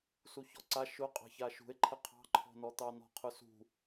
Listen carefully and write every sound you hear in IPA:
suçɔǀa ʃʊ qʼɑ̤çaʃṳe̯ǃʰə qʰɑ̤ǃʰɔ̤nɔt̪ɑ nɔ̤qʰʊsṳ

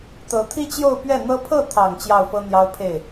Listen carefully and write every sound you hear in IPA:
t̪ɤ˧˥t̪ʰi˥t͡ɕjo˥˧ʊ̯ pɥɛ˥˩n̪ɤ˥ pʰɤ˥˩t̪ʰɑ˨˩ŋ t͡ɕjɑ˥˩ʊ̯fɤ˥ n̪jɑ˥ʊ̯pʰe˥˩ɪ̯

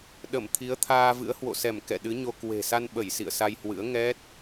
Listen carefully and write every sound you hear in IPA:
ɗə˧˩mt̪ʰi˨˦ə̯ t̪ʰaː˧vɨ̰˧˥ə̯ hwo̰˧˨sɛ˧˩m kɛ̰˧˨ɗɨ˨˦ɲo˧ kwe̤˨˩sa˧n ɓə˧˩jsḭ˧˨ə̯ sa˧jhwɨ̰˧˥ə̯ ŋɛ˦˥t̚

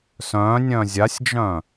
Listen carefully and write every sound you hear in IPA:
sœ̃nʲœ̃ zʲasʲd͡ʒœ̃

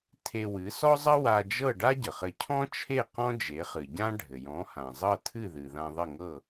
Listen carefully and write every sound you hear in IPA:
tʰe˧ wɨ˩˥sɔ˥zˤə˥ wa˧d͡ʒɤ˥˩ɖa˥ ɟə˩χɘ˧ cʰɔ̃˥ t͡ʃʰe˥˩ qɔ̃˥d͡ʒe˩˥χɨ˩ɟã˥ ɖʱɘ˩jɔ̃˩˥hã˩ zˤɤ˥˩tʰɨ˥˩ðɨ˩ ðã˧ðˤɘ˥˩ŋɤ˥˩

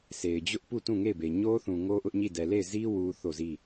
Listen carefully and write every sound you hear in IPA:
se˨ɪ̯d͡ʑʊ˦ʔpu˦˨ tũ˦˨ŋe˦˨ɪ̯be˨ ɲo˦θũ˨ ŋo˦ ʔʊ˦ʔɲi˦˨ dɛ˨le˦˨ɪ̯ zi˦ wu˦ θo˦˨zi˦˨

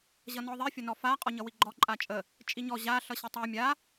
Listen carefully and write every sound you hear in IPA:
ʑʌnɔðˤi fʲʌnɔfa qʼɔɲʌwiɡ͡ǃɔ ǃʼat͡ʃʼə | t͡ʃʼiɲɔ ʑa ɬʌɕətˤa mʲa

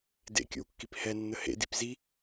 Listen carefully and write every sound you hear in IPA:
dḛkʲo̰wkːip hɛnːə hḛdip zi

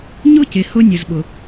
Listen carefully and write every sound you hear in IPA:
ɲʊ˦cɪ˨ hʊ˦nʲʊ˨zɓʊ˨

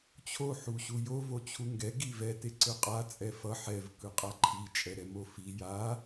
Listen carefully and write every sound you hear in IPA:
t͡ɕʰo ħuɕujo vot͡ɕʰuŋɡɛ ɡivɛ teǀɯqʼa t͡sʼɛfʌ ħɛv kɯqʼaǃʰi t͡ʃʼɛɾɛmofi ja

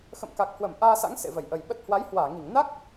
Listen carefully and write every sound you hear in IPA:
xə̰˧˨mka˨˩k̚hwə˧˩m ʔaː˧sa̰˧˥ŋ sḛ˧˨və˧˩j ʔə˨˩jɓə˦˥t̚ hwa˨˦jhwaː˧˩ŋi˧˩ŋ na˦˥k̚

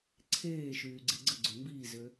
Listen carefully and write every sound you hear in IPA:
ǀʰeːʃyːɡ͡ǀe ɡ͡ǀəɡ͡ǀø mbiːzø

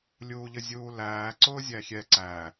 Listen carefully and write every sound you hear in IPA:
lʲuːʎəzʲuːlæː ǀʊːzʲæxʲɛ ǀæ

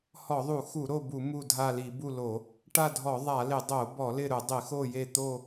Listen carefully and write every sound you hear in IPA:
hɔ˧˩˧ðˤu˧˩˧xu˧˩˧ ɾo˦˨bu˧˩˧ mu˦˨dʱa˦˨li˧˩˧ bu˦˨lo˧˩˧ | ʈa˦˨dʱɔ˧˩˧ ðˤa˧˩˧lɪ˧˩˧ dˤo˧˩˧bɔ˧˩˧lɪ˦˨ɾʊ˧˩˧ dˤɪ˧˩˧xo˦˨je˦˨ t̪o˦˨

